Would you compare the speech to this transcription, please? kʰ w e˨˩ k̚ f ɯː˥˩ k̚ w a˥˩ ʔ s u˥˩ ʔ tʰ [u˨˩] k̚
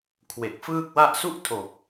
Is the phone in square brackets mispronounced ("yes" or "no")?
yes